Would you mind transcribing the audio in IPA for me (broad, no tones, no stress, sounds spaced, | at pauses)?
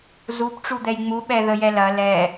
z u p ʈ͡ʂ u d̪ ɛ j ŋ͡m u ɓ ɛ ð ə j ɛ l ɐ l ɛ